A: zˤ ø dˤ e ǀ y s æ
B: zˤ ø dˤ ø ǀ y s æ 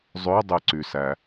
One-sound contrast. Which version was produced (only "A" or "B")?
A